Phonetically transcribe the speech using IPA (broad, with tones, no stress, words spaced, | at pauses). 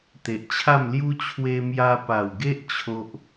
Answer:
t̪e˨ʔt͡ɕʰa˥˧mlju˦ t͡ɕʰwe˧mja˧pa˨˩wɡe˦ʔ t͡ɕʰo˦ʔ